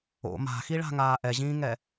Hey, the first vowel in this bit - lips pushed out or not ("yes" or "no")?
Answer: yes